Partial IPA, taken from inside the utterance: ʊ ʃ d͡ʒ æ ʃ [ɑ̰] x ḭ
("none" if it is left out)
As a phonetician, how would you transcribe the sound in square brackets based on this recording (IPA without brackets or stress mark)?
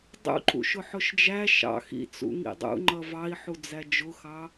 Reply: ɑ̰